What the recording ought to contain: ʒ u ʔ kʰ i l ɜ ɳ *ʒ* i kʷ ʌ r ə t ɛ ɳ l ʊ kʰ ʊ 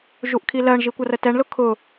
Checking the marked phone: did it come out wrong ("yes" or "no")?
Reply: no